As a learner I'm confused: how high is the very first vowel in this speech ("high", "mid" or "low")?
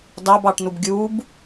low